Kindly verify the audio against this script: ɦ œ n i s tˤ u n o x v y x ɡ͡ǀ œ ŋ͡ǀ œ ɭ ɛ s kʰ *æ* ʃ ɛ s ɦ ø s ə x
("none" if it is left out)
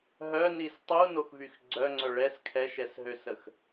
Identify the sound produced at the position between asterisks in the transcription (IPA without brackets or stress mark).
ɛ